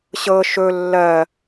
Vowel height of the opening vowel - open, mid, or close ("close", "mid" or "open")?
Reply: mid